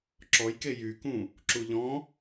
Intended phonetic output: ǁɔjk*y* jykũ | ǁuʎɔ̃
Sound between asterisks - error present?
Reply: yes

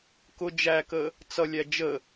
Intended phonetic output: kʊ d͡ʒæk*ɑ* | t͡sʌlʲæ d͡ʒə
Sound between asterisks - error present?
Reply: yes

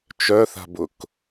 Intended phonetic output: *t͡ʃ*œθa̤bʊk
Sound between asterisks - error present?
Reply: no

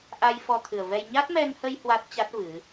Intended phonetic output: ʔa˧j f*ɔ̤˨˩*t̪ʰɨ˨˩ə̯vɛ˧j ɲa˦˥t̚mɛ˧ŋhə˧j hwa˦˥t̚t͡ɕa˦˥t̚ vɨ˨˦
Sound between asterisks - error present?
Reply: yes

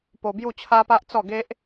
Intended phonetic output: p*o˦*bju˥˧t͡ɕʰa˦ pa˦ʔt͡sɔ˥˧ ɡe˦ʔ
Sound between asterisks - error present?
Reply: yes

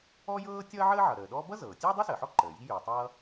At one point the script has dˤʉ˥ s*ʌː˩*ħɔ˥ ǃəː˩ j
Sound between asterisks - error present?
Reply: yes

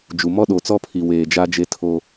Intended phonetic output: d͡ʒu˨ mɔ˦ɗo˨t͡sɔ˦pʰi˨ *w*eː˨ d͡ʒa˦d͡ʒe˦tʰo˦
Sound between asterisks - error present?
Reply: no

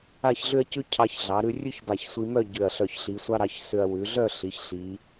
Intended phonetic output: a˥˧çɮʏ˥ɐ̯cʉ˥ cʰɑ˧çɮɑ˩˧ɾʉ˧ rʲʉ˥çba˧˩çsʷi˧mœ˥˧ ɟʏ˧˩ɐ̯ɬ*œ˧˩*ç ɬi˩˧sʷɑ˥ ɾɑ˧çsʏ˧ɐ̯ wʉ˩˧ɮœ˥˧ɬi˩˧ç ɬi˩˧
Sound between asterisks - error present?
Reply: no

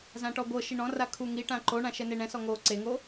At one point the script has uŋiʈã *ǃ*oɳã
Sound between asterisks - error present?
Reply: no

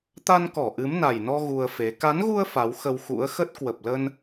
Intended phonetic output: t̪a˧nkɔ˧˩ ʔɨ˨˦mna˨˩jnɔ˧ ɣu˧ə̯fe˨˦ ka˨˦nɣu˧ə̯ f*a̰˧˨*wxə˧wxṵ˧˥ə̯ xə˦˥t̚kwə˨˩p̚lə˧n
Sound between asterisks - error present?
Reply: yes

